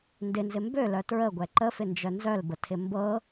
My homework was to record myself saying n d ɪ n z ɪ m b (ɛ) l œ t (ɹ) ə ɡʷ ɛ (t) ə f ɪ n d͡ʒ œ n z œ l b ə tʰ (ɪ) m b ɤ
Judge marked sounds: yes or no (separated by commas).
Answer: no, yes, no, yes